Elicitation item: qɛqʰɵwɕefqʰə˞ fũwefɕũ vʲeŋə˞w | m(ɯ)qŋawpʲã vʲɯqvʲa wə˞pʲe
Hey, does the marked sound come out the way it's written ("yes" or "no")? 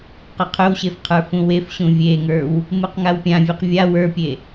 yes